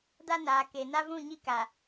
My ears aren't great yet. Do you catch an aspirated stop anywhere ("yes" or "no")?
no